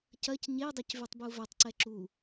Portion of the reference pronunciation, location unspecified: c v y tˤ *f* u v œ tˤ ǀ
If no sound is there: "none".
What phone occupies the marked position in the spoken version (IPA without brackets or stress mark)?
b